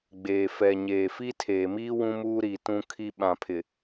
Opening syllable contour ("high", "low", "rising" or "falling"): low